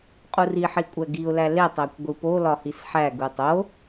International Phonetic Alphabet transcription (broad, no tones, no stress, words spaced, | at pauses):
qʼuriħi kʷʼæɡiʊ̯læ letˤækʷ ɡʷipolɒ hisħæɡu tˤo